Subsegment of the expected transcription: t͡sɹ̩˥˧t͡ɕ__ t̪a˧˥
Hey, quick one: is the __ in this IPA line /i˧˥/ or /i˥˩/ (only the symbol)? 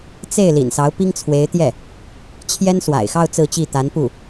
i˥˩